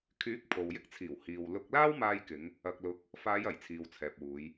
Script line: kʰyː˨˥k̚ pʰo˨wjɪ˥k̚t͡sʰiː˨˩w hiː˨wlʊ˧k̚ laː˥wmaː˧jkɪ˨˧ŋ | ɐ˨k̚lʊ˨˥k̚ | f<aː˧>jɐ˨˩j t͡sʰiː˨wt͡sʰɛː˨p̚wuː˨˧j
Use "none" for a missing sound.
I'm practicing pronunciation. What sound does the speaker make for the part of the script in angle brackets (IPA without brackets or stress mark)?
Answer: aː˨˧